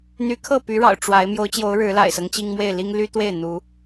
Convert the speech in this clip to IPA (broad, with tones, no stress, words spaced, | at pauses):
n̪y˨˦kʰɤ˥˨py˨˦ɻɑ̰˨˩ʊ̯ ʈ͡ʂwa˨˦ɪ̯ mjo˨˦ʊ̯t͡ɕjo˨˦ʊ̯ ɻɻ̩˨˦la̰˨˩ɪ̯sɤ˦ŋ t͡ɕi˦ŋmwe˥˨ɪ̯ li˦ŋ ly˦t̪we˥˨ɪ̯n̪u˨˦